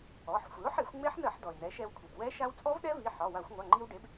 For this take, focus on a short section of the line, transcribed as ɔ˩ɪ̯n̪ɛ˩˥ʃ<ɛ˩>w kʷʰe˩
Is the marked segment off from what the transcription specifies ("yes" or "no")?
yes